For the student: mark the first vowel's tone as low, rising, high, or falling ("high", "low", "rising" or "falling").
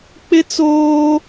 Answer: high